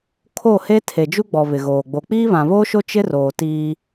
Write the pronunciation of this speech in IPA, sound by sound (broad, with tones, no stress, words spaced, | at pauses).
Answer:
kʰo˦˨he˦ tʰe˨d͡ʒu˦ɡ͡bɔ˨ βɪ˨ɣoː˨ ɡ͡bo˨ k͡piː˦βã˨βoː˦ʃo˦ t͡ʃɪ˦roː˨ tiː˦